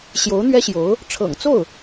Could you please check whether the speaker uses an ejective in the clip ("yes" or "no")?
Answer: no